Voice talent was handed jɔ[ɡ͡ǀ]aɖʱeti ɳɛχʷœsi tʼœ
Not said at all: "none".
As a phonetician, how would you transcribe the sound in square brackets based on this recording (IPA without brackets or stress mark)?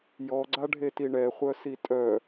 ɡ͡ǀ